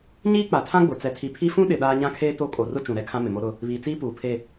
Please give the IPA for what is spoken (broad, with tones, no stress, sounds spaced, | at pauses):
ɲ iː˦ k͡p a˨ tʰ ã˦ ɡ͡b ʊ˨ t͡s ɛ˨ tʰ i˨ pʰ i˦ f ũ˦ ɗ ɪ˨ ɗ aː˦ ɲ ã˦ kʰ eː˦ t o˦˨ kʼ o˨ r ʊ˦ t͡ʃ ũ˨ ɾ ɛ˦ kʰ ã˦ m ɪ˨ m o˦ ɾ ʊ˦ | β iː˨ t͡s iː˦ p uː˨ pʰ e˦˨